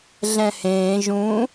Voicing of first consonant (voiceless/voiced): voiced